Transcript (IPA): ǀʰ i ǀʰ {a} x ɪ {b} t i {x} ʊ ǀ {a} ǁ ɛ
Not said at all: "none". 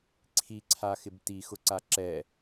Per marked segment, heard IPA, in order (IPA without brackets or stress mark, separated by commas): a, b, x, a